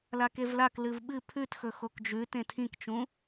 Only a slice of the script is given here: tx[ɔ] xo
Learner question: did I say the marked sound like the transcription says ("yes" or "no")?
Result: no